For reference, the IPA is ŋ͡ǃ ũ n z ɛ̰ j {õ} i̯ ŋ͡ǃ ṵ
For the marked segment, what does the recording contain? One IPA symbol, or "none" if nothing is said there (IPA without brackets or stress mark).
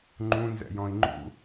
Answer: ɔ̃